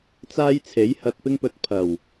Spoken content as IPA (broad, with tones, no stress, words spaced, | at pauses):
t͡saː˥j t͡sʰe˨˥jhɐ˧t̚pɪ˥ŋpɵ˧t̚ pʰɐ˨˩w